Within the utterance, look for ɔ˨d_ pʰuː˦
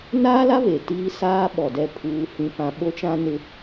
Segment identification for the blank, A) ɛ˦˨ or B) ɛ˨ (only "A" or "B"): A